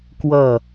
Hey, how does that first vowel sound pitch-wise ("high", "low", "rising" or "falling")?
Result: falling